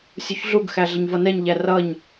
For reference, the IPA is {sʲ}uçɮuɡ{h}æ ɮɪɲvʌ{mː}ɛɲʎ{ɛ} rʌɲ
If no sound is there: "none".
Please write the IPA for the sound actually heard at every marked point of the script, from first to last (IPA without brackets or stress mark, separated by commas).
sʲ, x, n, æ